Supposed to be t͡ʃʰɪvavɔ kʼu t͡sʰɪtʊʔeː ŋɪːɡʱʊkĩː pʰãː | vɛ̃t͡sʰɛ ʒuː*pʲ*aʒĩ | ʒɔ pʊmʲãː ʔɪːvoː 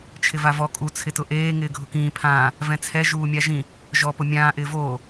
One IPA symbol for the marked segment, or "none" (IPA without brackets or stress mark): mʲ